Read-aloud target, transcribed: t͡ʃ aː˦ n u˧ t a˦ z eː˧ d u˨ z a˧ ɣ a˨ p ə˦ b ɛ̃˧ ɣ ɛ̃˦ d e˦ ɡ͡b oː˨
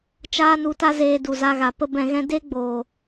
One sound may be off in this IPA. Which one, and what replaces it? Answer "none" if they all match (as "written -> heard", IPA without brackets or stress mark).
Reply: none